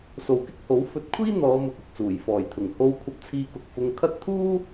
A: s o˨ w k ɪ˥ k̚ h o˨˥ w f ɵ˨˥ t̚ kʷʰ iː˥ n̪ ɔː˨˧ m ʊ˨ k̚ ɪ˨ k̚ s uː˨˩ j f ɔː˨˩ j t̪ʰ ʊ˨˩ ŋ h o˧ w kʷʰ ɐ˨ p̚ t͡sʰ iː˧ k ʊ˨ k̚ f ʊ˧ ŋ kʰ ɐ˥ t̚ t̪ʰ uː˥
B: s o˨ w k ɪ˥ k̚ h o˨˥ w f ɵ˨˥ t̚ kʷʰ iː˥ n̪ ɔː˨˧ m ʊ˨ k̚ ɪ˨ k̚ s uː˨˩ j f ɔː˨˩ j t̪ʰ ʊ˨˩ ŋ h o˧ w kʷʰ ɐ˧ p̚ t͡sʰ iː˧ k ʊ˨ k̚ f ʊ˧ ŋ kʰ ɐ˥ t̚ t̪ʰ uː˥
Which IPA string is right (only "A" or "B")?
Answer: B